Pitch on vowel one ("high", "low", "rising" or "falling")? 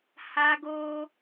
high